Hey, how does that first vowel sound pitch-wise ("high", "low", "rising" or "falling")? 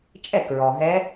falling